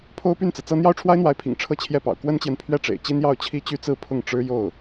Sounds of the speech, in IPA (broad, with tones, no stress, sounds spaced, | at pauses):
pʰ o˥ ʊ̯ p y˥˩ n t͡s ɹ̩˩ t͡s ɤ˥ n̪ j ɑ˥˩ ʊ̯ ʈ͡ʂʰ w a˥ ɪ̯ n̪ w a˧˥ ɪ̯ pʰ ḭ˨˩ ŋ ʈ͡ʂʰ ɤ˥˧ t͡ɕʰ j ɛ˥˩ p ɑ̰˨˩ ʊ̯ k w ə˥ n t͡ɕ j ɛ˨ n pʰ ɥ ɛ˥˩ ʈ͡ʂ ḛ˨˩ ɪ̯ t͡ɕ i˥ n j ɑ˥˩ ʊ̯ t͡ɕʰ i˥ t͡ɕ y˥ t͡s ɹ̩˥˧ pʰ ʊ˥˩ ŋ ʈ͡ʂ ɻ̩˥ j o˥˩ ʊ̯